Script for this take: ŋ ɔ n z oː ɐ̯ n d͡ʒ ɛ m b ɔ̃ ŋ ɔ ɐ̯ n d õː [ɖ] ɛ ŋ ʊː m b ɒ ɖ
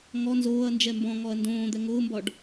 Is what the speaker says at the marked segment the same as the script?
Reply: no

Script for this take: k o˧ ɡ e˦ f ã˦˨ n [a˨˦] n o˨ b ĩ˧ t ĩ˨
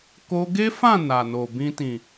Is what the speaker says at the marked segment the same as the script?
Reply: no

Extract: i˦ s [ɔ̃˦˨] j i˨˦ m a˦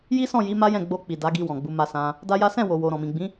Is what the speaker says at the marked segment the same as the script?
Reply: yes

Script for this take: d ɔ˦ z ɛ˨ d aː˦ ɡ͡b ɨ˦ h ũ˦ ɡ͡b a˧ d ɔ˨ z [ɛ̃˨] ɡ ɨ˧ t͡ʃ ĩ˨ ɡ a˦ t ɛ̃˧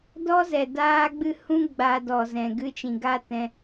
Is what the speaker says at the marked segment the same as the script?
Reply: yes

